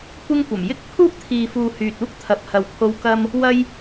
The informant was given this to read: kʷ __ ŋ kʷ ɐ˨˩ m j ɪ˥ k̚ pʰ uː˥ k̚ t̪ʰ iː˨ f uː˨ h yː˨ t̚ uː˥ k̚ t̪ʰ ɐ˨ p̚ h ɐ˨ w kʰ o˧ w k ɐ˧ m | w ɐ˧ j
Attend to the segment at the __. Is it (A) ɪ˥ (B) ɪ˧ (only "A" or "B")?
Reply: A